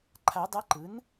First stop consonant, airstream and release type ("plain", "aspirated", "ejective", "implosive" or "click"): click